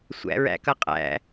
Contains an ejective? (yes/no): yes